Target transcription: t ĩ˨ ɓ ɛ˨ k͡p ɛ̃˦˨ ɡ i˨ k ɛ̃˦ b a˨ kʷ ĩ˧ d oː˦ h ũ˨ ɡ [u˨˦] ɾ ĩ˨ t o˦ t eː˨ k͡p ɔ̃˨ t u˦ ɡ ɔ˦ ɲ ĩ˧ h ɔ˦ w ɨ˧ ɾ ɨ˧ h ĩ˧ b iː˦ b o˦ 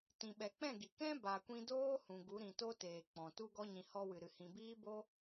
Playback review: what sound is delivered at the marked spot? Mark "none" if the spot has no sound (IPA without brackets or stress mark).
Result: u˨˦